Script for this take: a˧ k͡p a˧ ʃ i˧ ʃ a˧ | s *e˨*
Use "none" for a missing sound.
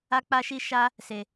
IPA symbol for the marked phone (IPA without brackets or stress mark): e˨